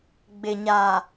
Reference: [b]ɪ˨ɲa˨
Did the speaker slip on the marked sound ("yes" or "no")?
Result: yes